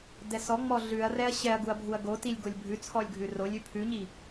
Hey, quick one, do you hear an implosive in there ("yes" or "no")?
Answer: no